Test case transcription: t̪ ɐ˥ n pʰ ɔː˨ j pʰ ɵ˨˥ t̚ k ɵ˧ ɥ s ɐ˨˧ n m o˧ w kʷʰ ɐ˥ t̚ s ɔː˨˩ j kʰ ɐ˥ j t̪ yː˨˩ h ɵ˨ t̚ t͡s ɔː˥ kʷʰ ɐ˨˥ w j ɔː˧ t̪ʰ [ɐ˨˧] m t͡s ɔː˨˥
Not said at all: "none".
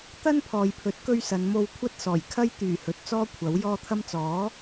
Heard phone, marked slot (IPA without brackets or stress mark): ɐ˧